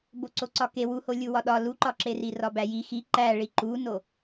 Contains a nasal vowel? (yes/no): no